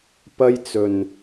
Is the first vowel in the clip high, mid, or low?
low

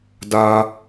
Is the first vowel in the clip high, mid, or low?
low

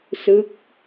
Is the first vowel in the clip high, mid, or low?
high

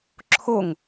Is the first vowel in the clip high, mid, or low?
mid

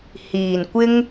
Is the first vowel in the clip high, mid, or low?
high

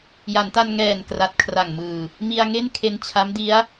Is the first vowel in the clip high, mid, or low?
low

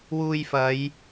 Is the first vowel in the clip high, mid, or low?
high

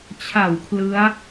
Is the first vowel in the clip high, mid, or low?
low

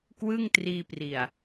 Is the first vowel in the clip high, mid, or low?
high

